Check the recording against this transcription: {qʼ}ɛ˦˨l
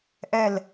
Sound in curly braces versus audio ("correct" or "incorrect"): incorrect